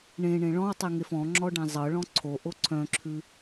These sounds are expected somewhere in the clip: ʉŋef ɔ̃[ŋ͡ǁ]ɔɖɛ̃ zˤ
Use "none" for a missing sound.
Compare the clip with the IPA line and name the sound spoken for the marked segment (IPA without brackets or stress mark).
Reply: ŋ͡ǁ